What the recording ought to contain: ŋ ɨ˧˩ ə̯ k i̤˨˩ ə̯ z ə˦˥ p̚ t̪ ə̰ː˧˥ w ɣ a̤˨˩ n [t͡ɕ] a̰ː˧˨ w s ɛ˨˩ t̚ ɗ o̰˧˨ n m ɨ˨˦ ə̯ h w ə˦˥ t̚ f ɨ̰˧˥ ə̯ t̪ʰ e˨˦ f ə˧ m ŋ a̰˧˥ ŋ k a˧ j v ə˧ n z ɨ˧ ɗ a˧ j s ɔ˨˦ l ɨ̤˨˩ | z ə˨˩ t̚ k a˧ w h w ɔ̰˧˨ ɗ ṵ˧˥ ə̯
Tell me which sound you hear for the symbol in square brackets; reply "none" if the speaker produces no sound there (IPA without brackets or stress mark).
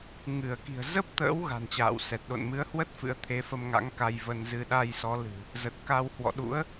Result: t͡ɕ